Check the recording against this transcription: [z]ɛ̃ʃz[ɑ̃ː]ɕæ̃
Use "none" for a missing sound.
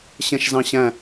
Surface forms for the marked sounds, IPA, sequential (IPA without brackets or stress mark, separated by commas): ɕ, ɑ̃